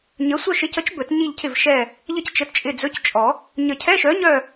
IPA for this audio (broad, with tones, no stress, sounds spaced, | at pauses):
ɲ ə˨˥ sʷ œ˦˨ ʃ ɪ˨˥ c ə˨˥ t͡ʃ b ɵ˨˩˦ t ɲ i˦˨ ʎ cʰ ɪ˦˨ v ʃ ɛ˦˨ | ʎ ə˦˨ c t͡ʃ ə˨˥ t t͡ʃʼ ɪ˦˨ d͡z ɵ˧˥˧ c t͡ʃʼ ɔ˨˩˦ | ɲ ə˨˩˦ cʰ ɛ˧˥˧ ʃ œ˨˥ ɲ œ˦˨